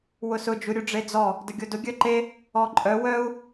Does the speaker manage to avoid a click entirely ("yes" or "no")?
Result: no